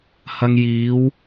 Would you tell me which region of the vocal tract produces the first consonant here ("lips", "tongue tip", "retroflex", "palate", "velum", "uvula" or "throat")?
throat